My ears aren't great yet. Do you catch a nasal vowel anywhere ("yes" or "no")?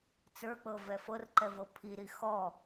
no